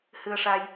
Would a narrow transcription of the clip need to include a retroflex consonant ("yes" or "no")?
yes